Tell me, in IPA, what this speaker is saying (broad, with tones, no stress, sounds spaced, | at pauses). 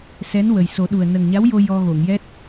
s ɛ˧˥ n w ə˨˩ j s o˨˩˦ ɗ u˨˩ ə̯ n ə˨˩ ŋ ɲ a˧˥ w j o˧ j ɔ˧ ɣ o˨˩˨ ŋ j ɛ˦˥ t̚